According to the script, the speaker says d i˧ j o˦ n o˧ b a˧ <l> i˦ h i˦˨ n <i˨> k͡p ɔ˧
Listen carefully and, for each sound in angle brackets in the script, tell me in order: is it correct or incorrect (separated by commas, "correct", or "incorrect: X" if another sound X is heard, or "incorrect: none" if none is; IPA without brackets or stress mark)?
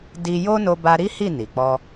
incorrect: ɾ, correct